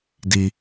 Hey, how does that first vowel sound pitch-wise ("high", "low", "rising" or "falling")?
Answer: high